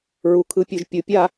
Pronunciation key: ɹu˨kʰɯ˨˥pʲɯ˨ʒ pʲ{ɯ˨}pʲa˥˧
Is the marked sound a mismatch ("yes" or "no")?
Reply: no